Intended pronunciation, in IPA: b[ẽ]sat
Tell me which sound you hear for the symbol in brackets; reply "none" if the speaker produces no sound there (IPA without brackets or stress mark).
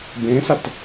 ẽ